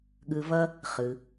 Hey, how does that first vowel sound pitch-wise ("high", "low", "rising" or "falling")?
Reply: low